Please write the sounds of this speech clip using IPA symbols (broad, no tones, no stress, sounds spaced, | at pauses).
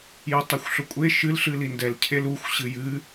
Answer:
j ʌ tˤ e xʷ ɬ ʊ kʷʼ e ʃ ɨ l ɬ ɨ l i n d ɛ l cʰ e l u xʷ ɕ ɨ j ɨ